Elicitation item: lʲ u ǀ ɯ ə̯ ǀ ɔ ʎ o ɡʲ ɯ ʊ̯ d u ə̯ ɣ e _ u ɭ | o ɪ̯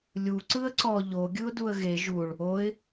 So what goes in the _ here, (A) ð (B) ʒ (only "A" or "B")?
B